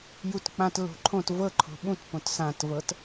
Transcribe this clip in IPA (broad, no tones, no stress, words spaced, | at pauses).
jutk͡pãt lo̤ǃʰõt vɤǃʰo̤ ɓũtpõt sãtvɤt